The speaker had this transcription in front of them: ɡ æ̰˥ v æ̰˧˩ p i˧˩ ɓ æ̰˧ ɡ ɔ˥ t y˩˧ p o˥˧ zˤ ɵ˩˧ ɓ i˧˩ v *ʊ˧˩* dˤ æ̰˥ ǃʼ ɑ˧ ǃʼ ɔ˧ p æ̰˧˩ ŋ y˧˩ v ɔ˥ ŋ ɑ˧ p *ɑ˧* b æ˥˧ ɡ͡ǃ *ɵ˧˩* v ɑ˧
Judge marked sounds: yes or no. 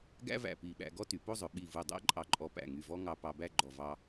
no, yes, no

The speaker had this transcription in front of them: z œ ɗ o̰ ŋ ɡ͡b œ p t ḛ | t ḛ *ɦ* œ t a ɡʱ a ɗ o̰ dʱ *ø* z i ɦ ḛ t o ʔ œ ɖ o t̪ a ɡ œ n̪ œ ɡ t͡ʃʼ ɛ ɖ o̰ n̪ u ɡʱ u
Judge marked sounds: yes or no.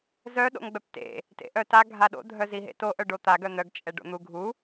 no, no

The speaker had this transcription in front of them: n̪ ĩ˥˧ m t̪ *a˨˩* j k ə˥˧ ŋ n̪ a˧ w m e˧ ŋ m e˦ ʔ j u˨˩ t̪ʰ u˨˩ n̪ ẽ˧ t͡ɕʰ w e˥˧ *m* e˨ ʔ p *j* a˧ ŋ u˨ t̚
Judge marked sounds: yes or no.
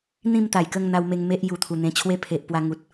yes, no, no

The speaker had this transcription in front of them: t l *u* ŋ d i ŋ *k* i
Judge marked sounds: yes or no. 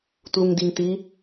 yes, no

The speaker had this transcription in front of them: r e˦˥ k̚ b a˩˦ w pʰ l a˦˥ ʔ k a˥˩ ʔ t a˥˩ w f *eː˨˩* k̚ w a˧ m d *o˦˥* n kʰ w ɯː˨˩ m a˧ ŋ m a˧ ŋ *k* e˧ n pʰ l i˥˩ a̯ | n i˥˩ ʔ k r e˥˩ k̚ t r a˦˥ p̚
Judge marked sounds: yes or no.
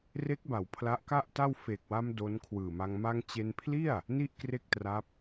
yes, yes, no

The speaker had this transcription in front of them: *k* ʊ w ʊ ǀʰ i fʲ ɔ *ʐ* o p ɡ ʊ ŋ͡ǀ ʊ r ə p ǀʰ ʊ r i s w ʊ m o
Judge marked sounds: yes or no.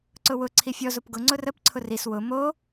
no, no

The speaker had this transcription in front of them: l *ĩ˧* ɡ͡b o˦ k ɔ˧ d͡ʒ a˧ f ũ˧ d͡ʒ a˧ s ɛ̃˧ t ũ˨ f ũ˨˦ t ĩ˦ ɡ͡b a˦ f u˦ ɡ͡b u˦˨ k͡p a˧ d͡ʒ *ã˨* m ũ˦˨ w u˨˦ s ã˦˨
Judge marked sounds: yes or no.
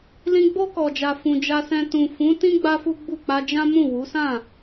yes, no

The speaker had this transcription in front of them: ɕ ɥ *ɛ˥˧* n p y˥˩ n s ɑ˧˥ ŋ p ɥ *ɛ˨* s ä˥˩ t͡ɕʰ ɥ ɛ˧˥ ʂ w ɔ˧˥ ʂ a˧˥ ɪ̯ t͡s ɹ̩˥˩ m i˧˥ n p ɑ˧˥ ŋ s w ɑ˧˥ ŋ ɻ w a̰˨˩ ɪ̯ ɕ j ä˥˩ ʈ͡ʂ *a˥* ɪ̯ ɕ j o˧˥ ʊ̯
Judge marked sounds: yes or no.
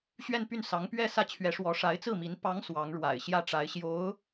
yes, no, no

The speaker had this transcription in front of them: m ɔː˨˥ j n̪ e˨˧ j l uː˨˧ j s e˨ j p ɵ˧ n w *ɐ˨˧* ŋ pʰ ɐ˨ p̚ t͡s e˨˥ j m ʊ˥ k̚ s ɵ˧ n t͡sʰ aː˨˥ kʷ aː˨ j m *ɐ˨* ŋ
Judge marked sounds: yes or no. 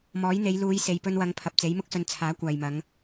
yes, no

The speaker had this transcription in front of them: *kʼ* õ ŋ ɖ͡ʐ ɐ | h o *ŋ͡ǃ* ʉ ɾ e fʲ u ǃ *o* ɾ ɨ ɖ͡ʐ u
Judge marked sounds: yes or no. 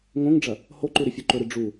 no, no, no

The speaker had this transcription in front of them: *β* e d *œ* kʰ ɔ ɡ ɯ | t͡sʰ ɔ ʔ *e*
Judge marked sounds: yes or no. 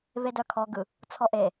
yes, yes, yes

